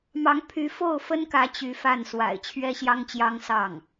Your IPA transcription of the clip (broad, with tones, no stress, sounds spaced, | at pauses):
m ɑ˧˥ ŋ pʰ y˧˥ f o˥˩ ʊ̯ f ə˥ n k ä˧˥ t͡ɕ y˧˥ f a˥˩ n s w a̰˨˩ ɪ̯ t͡ɕʰ ɥ ɛ˥ ɕ j ɑ˥ ŋ t͡ɕ j ɑ˥ ŋ s ɑ˥˩ ŋ